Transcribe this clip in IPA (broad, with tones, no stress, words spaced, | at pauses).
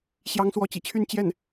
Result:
ɕjɑ˧˥ŋswɔ˧˥t͡ɕḭ˨˩t͡ɕʰy˥˧n t͡ɕjɛ˥˩n